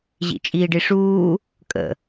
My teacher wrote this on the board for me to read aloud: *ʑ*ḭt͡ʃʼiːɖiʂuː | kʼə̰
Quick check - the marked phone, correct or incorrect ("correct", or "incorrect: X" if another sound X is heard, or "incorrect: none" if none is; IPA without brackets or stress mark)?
correct